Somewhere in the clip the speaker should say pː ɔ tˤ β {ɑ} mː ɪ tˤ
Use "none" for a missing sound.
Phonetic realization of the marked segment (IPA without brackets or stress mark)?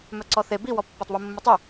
ə